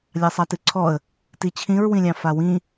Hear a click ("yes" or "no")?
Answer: yes